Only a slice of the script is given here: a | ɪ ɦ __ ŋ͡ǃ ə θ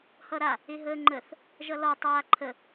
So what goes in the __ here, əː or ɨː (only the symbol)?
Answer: əː